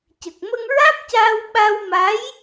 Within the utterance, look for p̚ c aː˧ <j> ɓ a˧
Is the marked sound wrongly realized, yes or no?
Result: yes